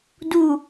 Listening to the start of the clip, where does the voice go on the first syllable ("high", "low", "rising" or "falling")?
low